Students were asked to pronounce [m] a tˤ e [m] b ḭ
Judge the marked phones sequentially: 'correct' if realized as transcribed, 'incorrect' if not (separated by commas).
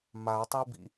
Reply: correct, incorrect